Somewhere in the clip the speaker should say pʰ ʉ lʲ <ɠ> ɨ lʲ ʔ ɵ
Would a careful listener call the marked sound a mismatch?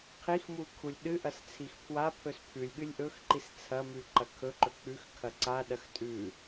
no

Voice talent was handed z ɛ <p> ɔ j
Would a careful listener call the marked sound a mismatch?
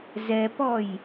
no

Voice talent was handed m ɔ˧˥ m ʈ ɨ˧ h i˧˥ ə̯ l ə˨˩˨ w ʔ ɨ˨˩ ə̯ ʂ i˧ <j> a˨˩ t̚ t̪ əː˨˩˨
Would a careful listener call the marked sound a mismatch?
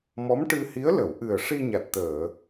yes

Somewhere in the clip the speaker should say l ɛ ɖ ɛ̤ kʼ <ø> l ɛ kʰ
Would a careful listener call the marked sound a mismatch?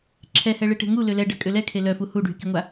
no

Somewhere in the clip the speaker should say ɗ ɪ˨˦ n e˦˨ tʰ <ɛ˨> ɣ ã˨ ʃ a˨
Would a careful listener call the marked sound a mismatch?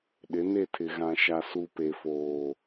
yes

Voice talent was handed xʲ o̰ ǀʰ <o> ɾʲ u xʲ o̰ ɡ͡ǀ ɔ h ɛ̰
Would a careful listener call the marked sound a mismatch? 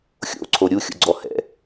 no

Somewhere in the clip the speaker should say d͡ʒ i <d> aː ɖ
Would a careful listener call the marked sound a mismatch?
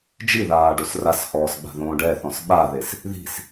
yes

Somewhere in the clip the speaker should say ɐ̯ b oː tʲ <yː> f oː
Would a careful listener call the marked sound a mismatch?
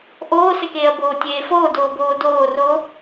yes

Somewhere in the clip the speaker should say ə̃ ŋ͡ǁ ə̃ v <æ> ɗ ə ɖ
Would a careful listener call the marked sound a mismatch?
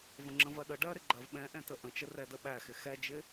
yes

